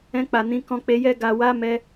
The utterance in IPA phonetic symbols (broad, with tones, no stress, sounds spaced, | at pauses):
ɛ̃˧ k͡p a˨ n ĩ˨˦ k ɔ̃˧ k͡p e˧ j ɛ˧ ɡ a˨ w a˧ m ɛ˧